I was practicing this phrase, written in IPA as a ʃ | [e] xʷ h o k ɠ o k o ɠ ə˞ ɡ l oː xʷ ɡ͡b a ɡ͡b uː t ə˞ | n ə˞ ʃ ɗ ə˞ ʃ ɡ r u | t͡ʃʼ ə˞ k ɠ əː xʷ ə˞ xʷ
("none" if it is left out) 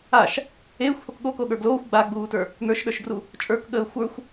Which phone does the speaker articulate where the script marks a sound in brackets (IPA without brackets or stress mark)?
eː